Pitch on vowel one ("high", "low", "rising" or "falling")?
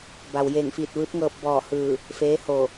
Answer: low